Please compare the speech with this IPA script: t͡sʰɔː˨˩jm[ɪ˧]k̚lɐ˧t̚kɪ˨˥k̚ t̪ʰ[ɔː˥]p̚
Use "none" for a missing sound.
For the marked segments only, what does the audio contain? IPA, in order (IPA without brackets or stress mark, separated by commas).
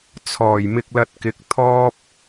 ɪ˧, ɔː˥